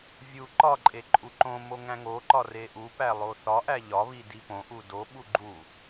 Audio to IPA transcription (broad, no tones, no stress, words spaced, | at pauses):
vʲu ǃɒǃʼe ǃʼuǃõmo ŋæ̃ŋoǃɒ reʔupæ lˠoθɒʔæ ʎɒβi dipõʔu doɓu ɡ͡ǃu